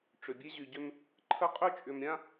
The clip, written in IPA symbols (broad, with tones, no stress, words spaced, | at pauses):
ʈ͡ʂʏ˨bʲe˦ ʑy˨ɟʏ˦m | ǃʰə˦qʼʏ˦t͡ʃʼʏ˨mɾʲã˦